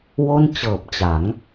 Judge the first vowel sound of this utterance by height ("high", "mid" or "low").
mid